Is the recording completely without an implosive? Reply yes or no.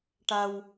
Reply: yes